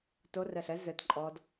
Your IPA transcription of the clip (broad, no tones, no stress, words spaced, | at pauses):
to rɛɬɛ zɘt ǃʼɔd